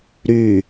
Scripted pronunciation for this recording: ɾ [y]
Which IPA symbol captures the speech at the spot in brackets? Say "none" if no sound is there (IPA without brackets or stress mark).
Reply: y